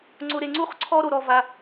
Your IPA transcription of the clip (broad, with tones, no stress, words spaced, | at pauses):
ŋ͡ǀʊ˧ɾe˧ ŋ͡ǀu˥χǀʰɔ˥ɾo˧ɾɔ˧ va˧